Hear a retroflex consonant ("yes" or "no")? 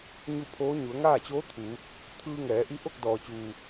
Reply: no